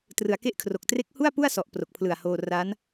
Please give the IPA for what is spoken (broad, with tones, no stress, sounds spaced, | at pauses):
t r ɯ˩˦ a̯ k e˥˩ ʔ kʰ r o˨˩ k̚ t r e˦˥ k̚ h u˥˩ a̯ p u˥˩ a̯ s ɔ˨˩ ʔ p r o˨˩ k̚ pʰ l ɯ˨˩ a̯ h oː˧ r a˦˥ n